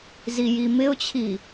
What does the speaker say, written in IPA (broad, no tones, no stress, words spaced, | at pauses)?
zijimɪʊ̯t͡ɕʰi